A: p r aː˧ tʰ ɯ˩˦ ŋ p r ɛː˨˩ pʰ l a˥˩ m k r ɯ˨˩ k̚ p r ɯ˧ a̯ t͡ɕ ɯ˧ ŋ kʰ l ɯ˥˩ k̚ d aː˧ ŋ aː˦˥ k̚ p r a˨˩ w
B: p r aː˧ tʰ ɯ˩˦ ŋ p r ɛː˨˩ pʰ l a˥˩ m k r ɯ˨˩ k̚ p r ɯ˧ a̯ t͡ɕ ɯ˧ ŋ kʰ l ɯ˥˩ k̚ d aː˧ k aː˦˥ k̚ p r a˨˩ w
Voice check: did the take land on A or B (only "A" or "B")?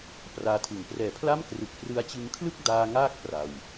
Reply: A